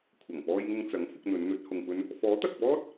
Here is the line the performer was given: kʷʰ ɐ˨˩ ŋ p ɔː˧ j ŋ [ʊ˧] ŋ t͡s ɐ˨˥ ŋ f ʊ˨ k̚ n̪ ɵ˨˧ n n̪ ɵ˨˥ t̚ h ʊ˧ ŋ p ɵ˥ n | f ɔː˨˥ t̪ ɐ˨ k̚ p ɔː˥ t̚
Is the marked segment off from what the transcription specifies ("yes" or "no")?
no